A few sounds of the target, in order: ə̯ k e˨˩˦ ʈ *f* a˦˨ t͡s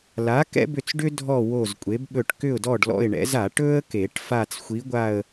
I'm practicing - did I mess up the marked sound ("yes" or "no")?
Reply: no